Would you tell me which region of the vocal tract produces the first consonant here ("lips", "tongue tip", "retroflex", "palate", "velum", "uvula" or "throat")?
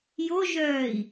palate